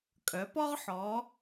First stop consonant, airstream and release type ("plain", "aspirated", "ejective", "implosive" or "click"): ejective